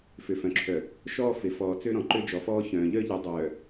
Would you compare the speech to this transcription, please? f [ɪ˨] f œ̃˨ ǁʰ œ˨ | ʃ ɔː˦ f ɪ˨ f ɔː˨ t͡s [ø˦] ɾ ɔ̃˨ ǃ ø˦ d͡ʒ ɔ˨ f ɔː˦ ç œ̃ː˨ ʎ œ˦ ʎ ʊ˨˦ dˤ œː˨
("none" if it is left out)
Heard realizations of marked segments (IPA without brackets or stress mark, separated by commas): ʏ˨, ø˦